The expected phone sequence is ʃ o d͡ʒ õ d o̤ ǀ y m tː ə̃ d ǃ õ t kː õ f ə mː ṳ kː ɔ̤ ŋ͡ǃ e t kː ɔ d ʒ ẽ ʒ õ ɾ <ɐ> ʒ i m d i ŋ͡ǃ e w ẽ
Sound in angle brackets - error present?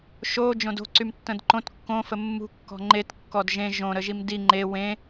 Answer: yes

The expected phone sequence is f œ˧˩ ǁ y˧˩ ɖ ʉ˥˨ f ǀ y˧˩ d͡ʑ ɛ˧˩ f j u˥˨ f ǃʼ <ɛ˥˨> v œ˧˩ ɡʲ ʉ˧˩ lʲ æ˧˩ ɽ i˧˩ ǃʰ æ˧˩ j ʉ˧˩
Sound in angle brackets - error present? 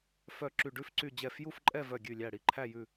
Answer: no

